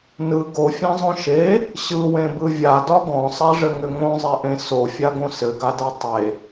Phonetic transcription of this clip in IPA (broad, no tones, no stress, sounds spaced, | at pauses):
n ɯ ɡ o fʲ ã zˤ õ ʃ e | ɕ ɯ w ẽ b ɯ vʲ a d ɒ ɡ ɔ̃ sˤ a ʐ ɘ ŋ ʏ ŋ õ zˤ e ʔ ẽ s o fʲ a ɡ õ s ɘ ɡ a d a tˤ e